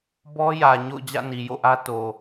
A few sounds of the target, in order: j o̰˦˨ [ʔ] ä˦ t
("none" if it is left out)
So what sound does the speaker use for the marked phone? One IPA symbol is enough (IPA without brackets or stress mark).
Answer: ʔ